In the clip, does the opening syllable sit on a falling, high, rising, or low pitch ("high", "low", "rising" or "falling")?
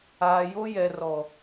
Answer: low